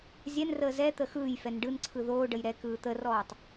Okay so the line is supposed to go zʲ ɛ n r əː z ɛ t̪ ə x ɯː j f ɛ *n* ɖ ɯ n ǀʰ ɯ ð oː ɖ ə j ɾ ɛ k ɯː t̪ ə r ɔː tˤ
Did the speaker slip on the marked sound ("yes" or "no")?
no